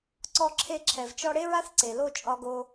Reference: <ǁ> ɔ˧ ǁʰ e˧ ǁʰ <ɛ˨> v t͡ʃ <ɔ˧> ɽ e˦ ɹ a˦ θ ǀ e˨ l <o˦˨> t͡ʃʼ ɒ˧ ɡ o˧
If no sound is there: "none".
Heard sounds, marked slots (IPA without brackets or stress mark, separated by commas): ǀ, ɛ˨, ɔ˧, o˦˨